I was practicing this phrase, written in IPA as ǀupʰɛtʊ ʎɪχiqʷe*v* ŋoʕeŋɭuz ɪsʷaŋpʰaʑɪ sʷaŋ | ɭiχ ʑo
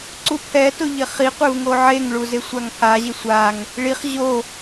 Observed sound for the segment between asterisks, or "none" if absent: v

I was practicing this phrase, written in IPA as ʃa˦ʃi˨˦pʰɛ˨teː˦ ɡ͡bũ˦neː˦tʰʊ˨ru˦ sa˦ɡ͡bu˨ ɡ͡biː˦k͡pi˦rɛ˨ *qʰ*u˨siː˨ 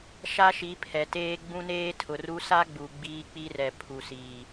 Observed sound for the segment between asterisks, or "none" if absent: pʰ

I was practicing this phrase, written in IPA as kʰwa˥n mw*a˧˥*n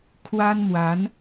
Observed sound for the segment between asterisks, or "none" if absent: a˧˥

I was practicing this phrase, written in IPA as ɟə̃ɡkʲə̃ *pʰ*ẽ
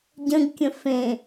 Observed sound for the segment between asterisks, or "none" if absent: f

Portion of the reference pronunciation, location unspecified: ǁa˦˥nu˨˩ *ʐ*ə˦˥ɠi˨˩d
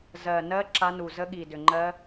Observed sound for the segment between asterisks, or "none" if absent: z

